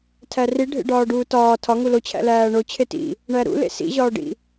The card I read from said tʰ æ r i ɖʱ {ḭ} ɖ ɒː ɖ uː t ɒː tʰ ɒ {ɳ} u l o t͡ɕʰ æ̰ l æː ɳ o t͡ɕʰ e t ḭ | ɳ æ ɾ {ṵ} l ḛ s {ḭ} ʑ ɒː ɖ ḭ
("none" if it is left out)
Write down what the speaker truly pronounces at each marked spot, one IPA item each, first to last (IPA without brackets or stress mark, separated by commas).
ḛ, ŋ, ṵ, ḭ